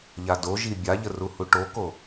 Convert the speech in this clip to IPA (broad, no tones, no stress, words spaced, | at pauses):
ʎadoʒi bʲaʎəruhu ʈoko